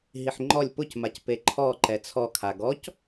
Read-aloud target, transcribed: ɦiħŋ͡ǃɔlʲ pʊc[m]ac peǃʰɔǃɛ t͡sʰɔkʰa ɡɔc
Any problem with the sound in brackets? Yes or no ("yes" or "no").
no